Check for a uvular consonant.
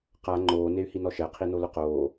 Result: present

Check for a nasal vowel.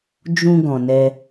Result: present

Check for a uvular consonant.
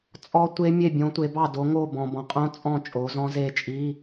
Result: present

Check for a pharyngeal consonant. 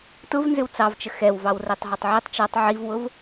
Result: present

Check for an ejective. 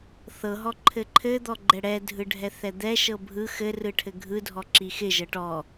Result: absent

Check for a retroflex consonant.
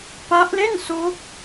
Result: absent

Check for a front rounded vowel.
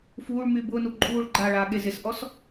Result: present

